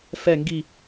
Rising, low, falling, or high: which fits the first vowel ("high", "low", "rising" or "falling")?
falling